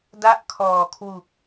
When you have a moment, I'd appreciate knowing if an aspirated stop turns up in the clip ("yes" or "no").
yes